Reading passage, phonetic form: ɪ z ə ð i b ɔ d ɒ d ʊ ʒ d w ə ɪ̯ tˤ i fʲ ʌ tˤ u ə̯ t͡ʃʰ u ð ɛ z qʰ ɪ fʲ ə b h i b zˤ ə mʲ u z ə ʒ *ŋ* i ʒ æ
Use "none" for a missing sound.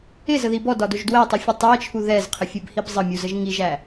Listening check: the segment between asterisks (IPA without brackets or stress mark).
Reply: ŋ